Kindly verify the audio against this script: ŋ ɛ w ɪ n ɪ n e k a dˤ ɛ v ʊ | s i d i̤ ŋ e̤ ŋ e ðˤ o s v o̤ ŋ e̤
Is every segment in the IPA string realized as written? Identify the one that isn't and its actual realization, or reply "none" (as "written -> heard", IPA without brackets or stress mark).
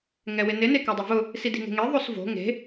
none